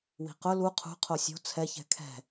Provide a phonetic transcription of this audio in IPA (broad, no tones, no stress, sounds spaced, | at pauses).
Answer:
w i̤ q ʊ l u qʰ ṳ qʰ o sʲ o̤ t͡sʰ ɛ ç ɛ̤ kʰ ɛ̤